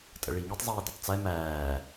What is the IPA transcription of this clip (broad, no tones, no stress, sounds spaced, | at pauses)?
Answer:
tʼ ə̰ ɭ i ŋ y tˤ zˤ iː d y tˤ t͡s ɛ m æː